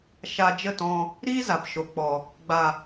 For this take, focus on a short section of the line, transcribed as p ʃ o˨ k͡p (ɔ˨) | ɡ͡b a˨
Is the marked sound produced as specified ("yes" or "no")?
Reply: yes